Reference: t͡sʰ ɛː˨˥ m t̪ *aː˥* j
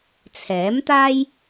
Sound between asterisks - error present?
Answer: no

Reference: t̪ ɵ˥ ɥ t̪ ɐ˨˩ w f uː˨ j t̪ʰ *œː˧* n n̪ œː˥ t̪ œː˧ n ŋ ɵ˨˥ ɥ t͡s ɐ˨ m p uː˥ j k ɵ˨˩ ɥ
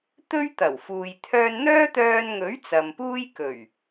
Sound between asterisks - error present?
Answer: no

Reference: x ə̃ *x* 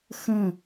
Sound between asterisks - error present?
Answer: yes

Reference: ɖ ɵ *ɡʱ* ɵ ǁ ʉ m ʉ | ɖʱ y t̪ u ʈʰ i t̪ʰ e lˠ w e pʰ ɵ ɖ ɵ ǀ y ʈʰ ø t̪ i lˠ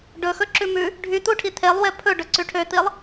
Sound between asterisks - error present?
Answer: yes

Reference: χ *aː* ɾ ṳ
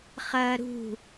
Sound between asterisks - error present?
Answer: yes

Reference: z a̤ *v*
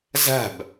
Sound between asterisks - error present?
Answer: yes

